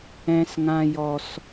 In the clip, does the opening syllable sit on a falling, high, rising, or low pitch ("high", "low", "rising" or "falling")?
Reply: high